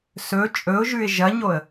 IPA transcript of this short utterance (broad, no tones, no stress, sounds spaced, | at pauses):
s ɵ t͡ʃʼ ɵ ʊ̯ ʒ ʉ ɪ̯ ʒ ɐ ɲ o ə̯